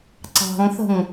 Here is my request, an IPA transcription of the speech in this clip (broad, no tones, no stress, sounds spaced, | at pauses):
ǀ ɑ̤ ŋ θ ə̤ ŋ